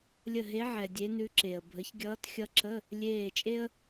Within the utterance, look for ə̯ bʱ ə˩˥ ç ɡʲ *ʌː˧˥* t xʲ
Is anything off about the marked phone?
no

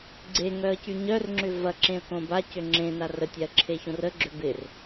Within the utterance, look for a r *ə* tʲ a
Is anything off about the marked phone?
no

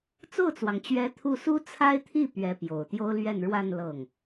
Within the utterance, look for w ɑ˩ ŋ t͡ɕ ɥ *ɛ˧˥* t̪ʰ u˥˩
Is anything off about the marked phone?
no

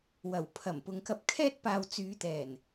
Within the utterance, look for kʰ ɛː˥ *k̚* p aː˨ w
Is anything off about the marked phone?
yes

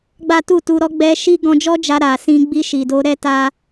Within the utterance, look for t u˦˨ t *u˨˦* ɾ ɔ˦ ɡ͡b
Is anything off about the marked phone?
no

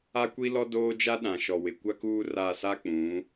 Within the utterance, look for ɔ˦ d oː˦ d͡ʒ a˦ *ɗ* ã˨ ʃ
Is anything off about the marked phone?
no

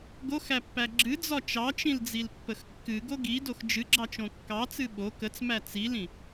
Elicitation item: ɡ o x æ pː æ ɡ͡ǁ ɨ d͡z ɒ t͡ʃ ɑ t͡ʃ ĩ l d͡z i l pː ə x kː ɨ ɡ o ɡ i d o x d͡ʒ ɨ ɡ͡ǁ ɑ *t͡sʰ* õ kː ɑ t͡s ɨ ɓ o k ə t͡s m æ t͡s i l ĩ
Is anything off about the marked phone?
yes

